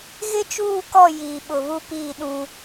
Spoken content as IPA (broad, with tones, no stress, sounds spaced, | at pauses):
ɣ ɪ˦ t͡ʃ uː˦˨ k ɔ˦˨ j iː˨ ɓ ʊ˨ β u˦ p iː˦˨ ɗ ũ˦